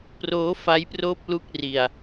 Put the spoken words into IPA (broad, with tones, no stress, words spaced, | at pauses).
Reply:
proː˦˥fa˦˥jproː˥˩p̚ lu˥˩k̚ ri˨˩a̯